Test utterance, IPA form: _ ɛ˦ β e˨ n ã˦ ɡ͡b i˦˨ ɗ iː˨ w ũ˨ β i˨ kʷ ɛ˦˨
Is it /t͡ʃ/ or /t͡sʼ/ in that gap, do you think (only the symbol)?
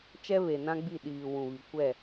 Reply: t͡ʃ